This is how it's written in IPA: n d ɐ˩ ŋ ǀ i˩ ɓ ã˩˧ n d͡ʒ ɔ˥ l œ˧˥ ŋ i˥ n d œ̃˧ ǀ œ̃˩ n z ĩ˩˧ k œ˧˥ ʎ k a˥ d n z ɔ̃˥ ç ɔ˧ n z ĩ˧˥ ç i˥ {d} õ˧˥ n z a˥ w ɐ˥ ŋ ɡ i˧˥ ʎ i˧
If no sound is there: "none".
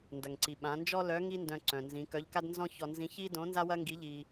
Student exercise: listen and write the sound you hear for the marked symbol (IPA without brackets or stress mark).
d